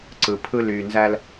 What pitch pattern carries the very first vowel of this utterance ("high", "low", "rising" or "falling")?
low